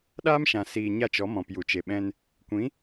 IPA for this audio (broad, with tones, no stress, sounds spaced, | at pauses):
ɗ aː˦ m ʃ ã˨ s iː˨ ɲ a˦ t͡ʃ ɔ˨˦ m ɔ̃˨ p j u˨ t͡ʃ e˨ ɓ ɛ̃˧ n | kʷ ĩ˨˦